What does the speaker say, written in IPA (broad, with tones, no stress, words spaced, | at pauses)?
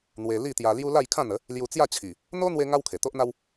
n̪we˧ li˥˧t̪ja˧ lju˦ la˥˧jkʰã˥˧n̪ə˨˦ | lju˧t͡sja˥˧t͡ɕʰi˨˩ | n̪o˦ n̪we˦ ŋa˦wkʰe˨˩t̪o˦ʔn̪a˦w